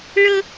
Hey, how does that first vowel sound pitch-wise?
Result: high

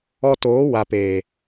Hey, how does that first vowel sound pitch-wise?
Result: high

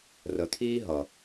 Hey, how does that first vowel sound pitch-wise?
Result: low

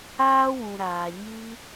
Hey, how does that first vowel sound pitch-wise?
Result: high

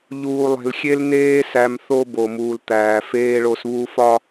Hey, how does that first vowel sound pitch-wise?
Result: low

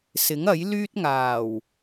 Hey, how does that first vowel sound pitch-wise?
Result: rising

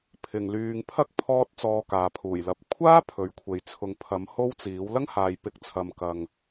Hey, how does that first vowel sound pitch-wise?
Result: low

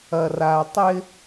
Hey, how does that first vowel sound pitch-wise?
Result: low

